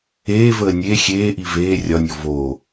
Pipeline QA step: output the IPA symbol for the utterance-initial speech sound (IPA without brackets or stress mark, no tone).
eː